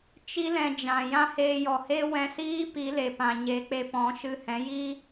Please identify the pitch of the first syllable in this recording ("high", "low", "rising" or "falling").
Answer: high